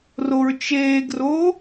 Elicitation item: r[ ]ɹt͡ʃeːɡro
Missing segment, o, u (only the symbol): o